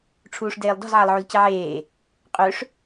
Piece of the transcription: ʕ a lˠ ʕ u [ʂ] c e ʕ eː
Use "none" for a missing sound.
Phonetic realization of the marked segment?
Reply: z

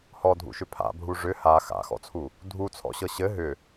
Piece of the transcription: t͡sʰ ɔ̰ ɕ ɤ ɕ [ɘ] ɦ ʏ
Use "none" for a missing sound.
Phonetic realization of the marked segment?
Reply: ɘ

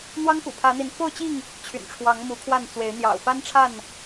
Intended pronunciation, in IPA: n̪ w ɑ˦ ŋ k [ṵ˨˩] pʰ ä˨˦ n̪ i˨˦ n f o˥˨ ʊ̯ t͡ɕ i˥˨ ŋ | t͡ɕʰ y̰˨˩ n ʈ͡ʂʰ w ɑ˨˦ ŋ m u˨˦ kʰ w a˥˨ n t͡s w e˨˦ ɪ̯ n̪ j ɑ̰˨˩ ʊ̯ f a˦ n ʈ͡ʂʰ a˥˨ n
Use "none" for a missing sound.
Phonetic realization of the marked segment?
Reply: ṵ˨˩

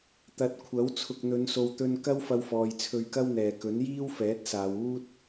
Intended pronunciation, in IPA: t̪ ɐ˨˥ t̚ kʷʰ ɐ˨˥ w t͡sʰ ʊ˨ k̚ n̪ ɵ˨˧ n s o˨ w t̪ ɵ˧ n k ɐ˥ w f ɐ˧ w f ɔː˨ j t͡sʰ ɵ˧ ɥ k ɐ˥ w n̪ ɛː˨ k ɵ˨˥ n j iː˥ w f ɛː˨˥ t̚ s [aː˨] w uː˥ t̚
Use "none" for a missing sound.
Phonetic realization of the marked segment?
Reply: aː˨˧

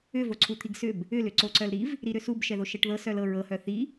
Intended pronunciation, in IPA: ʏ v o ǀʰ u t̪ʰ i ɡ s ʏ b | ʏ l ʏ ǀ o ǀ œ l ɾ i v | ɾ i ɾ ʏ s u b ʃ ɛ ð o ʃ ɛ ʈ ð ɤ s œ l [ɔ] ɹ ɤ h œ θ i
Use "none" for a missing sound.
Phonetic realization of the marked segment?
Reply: ɤ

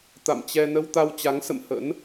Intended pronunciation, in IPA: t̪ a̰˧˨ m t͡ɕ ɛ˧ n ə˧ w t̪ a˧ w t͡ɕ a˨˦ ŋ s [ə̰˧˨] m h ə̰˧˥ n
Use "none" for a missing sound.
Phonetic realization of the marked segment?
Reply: ə̰˧˨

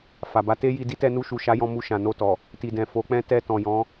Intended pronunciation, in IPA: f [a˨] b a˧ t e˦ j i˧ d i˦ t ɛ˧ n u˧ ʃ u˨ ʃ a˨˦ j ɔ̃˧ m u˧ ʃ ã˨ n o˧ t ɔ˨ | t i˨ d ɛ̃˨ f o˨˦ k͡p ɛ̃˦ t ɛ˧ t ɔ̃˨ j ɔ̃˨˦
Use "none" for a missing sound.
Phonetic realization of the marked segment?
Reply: a˨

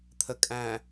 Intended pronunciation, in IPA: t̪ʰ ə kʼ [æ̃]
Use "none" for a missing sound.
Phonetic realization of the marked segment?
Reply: æ̃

